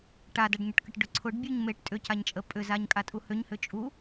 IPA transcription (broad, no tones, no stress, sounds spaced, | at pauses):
ʈ a d a ɖ ɲ ʏ ʈ k ə ʈ ɖ ʏ ǀʰ ʊ ɖ bʲ u ɲ m e ʈ tʼ ʏ c a ɲ t͡ʃʼ ə pʼ ʏ z a ɲ kʼ a tʼ u h ʏ ɲ h ʏ t͡ʃʼ u